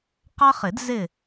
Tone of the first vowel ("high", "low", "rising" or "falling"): high